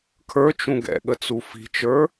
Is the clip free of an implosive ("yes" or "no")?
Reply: no